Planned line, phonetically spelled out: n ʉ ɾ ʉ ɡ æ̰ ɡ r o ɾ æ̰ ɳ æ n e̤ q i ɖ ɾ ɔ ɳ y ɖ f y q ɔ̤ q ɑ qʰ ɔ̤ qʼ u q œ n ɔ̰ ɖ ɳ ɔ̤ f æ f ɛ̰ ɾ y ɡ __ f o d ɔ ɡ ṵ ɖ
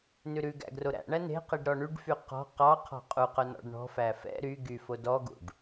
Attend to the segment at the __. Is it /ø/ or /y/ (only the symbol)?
y